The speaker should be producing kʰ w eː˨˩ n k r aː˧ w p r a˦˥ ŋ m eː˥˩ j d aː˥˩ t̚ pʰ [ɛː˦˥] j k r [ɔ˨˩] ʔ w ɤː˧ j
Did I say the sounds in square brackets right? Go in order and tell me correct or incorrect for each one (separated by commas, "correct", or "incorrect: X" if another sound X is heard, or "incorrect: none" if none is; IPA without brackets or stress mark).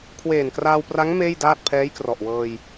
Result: correct, correct